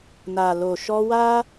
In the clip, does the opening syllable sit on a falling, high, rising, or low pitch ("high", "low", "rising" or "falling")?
low